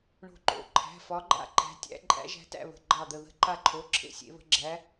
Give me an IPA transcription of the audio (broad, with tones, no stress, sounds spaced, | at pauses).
ɳ o̤˦˨ ǃ o̰˩˧˩ ǃʰ æ̤˩˧˩ f ɒ˨˦ ɡ͡ǃ a̰˦˨ ǃ æ̤˨˦ tʲ æ̰˨˦ ǃʼ æ̰˨˦ ʒ æ̤˨˦ t æ̰˦˨ β ə̤˩˧˩ ɡ͡ǃ ɑ˦˨ d̪ ə˦˨ ð ə̤˦˨ ǃ a˦˨ ǃʰ o˩˧˩ ǁʰ ḛ˦˨ sʲ ḛ˨˦ β ə̤˨˦ ɡ͡ǁ æ˨˦